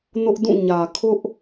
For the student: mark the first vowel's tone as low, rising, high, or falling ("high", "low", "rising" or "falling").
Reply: high